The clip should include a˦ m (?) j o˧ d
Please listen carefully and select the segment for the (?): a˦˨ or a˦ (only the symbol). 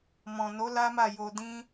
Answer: a˦˨